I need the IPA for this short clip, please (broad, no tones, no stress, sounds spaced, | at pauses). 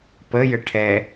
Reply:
p ə j ə ʈʰ ɛ